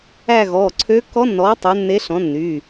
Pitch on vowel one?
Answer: falling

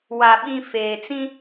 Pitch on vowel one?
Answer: low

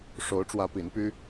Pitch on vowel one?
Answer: rising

